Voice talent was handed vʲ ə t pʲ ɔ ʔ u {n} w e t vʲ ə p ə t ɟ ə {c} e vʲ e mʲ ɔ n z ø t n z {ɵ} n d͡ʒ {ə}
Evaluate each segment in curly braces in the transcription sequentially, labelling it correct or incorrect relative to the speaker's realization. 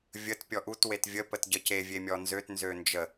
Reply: incorrect, correct, incorrect, correct

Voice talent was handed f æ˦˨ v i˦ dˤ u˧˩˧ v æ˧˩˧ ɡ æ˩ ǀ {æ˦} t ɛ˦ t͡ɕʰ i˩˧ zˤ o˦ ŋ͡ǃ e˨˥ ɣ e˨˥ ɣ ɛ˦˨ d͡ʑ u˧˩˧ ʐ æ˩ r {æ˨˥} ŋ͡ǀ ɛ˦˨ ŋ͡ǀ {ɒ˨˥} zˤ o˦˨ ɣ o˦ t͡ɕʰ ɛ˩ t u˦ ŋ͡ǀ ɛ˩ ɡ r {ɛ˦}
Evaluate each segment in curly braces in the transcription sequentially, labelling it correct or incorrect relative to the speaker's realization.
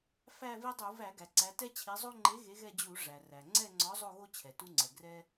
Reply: incorrect, incorrect, correct, correct

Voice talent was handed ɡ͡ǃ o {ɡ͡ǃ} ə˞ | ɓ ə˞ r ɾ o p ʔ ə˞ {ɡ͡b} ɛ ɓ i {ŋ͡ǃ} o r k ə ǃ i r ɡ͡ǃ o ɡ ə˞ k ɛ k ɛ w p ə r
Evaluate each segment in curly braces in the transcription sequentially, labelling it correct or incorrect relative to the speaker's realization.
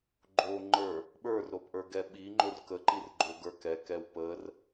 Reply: incorrect, incorrect, correct

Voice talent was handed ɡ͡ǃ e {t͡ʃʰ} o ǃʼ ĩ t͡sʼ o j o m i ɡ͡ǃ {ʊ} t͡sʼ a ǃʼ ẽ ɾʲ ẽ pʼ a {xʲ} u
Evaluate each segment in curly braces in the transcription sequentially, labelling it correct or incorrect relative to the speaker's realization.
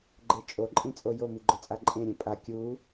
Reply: incorrect, correct, incorrect

